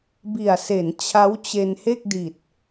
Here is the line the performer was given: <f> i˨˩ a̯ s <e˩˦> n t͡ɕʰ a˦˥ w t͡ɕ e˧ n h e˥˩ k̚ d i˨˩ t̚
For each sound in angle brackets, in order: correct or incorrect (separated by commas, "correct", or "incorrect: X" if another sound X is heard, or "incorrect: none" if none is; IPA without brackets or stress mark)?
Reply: incorrect: b, correct